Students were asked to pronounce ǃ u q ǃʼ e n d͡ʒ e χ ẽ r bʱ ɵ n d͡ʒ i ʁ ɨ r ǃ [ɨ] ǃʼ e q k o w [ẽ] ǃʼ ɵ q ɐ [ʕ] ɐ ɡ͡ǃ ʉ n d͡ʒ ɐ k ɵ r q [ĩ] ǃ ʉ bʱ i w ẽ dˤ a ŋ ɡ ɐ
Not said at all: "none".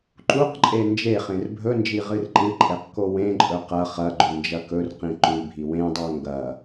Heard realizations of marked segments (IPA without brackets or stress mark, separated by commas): ɨ, ẽ, χ, ĩ